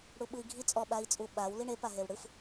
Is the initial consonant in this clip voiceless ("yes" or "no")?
no